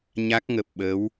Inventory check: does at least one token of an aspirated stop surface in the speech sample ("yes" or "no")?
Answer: no